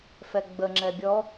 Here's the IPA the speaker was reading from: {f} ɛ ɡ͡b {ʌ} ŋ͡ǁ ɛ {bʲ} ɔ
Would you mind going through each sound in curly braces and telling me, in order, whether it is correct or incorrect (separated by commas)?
correct, incorrect, correct